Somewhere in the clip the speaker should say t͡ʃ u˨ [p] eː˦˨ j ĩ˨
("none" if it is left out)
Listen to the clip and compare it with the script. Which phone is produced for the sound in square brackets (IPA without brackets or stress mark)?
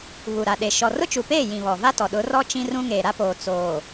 p